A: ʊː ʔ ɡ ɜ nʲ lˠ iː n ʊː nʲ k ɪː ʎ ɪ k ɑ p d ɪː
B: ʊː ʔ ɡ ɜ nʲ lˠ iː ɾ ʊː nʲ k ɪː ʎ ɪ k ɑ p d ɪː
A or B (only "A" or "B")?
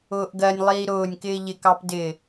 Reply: B